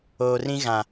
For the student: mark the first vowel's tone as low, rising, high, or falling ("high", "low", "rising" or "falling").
low